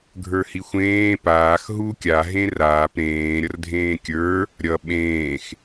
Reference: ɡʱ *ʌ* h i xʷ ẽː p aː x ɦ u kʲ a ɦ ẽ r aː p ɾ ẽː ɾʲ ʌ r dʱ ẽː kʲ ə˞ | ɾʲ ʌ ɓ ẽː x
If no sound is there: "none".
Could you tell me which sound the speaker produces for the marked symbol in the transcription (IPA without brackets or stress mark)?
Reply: ə˞